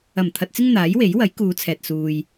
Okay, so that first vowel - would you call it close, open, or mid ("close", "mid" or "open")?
open